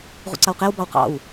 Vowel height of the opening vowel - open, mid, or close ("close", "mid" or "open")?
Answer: close